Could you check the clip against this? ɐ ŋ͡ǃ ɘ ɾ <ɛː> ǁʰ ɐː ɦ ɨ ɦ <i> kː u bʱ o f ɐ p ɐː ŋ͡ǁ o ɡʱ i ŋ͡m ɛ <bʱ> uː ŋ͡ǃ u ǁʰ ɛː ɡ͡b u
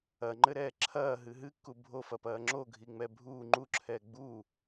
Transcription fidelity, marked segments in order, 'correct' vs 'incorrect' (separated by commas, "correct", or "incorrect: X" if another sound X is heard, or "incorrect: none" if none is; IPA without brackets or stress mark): correct, incorrect: ɨ, correct